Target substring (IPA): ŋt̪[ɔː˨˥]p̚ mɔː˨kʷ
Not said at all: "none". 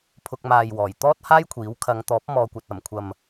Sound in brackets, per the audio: ɔː˨˥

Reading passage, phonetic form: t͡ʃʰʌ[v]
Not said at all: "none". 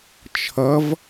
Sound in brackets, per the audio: v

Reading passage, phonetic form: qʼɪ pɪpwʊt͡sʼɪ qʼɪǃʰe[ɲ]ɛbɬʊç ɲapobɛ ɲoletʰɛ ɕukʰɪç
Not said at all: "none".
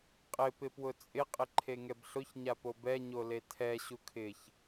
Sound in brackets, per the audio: ŋ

